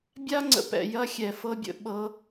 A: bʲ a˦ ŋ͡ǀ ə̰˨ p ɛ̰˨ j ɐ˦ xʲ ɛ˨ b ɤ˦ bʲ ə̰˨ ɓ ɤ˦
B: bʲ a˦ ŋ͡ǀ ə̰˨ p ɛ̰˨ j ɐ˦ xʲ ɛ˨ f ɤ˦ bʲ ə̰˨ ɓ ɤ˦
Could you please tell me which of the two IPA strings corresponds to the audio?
B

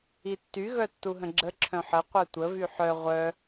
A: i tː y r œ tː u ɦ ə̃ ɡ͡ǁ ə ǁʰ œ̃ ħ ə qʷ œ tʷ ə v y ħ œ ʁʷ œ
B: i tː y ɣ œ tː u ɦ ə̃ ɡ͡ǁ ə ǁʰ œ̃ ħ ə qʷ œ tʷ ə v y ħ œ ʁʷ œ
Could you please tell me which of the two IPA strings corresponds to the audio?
B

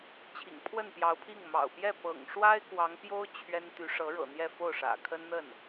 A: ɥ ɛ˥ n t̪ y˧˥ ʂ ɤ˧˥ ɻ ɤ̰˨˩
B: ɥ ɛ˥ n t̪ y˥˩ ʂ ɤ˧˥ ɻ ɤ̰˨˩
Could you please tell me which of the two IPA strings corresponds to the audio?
A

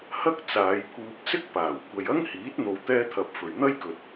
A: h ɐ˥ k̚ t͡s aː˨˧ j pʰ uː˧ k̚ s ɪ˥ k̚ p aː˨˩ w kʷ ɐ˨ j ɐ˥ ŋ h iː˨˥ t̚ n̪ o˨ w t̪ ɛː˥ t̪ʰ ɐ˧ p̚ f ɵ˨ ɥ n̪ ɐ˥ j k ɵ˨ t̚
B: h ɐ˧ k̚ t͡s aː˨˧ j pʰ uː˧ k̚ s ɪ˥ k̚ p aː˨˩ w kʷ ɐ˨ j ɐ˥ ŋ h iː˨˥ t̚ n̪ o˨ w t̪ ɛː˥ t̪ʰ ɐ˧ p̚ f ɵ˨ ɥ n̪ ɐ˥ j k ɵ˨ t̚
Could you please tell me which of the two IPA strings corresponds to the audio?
A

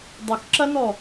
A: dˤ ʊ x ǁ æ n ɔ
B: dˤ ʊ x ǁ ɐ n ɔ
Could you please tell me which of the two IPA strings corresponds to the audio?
B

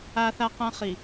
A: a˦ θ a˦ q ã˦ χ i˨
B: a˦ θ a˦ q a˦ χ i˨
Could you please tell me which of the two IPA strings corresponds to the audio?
A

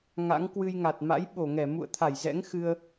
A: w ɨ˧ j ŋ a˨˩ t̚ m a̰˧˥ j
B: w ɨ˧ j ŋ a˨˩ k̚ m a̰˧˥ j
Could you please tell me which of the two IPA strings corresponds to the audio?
A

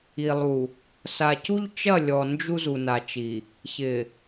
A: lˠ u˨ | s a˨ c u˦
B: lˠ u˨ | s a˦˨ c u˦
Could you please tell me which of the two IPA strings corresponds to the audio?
A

